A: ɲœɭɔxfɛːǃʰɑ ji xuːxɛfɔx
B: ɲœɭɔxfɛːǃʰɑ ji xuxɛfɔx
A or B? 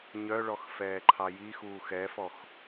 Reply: A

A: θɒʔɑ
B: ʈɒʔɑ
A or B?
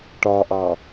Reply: B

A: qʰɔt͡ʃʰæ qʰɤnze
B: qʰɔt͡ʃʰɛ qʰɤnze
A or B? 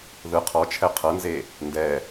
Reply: B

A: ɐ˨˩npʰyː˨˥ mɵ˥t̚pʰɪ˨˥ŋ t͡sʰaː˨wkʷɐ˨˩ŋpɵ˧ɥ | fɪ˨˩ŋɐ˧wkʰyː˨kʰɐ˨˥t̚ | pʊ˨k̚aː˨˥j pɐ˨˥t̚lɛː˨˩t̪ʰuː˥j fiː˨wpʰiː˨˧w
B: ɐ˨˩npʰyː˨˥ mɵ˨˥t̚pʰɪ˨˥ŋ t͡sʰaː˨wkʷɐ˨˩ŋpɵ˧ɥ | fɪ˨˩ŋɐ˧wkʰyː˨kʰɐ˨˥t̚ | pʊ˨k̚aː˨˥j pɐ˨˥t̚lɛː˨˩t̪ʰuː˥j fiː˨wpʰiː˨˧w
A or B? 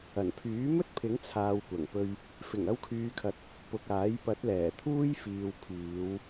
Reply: A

